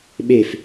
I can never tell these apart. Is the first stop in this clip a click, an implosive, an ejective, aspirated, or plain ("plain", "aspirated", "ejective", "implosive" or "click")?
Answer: implosive